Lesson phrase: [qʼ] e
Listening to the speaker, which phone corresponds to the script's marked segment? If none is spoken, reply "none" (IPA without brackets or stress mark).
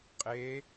qʼ